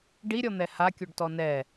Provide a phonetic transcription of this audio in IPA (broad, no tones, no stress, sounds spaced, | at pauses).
ɖ i ɾʲ ɔ n̪ ɛ h a kʲ o ɖ t ɔ n ɛ